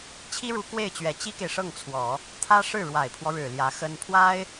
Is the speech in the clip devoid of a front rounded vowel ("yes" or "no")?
yes